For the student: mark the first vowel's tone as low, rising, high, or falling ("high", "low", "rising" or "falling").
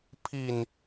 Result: low